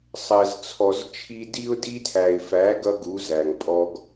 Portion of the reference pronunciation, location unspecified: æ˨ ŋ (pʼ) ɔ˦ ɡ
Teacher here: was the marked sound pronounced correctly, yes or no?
yes